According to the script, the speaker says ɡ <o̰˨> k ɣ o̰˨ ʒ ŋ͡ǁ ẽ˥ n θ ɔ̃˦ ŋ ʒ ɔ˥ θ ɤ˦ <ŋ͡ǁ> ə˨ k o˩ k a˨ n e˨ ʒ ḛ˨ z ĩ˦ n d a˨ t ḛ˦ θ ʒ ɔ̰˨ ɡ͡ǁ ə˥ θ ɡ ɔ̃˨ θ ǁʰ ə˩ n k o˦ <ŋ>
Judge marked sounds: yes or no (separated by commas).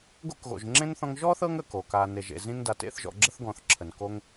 no, no, yes